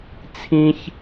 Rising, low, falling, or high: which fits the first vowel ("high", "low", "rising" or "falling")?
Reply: high